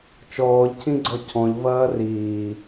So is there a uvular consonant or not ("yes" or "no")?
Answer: no